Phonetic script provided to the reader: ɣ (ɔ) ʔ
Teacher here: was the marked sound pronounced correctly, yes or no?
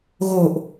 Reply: no